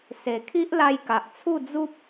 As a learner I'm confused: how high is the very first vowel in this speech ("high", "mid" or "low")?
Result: mid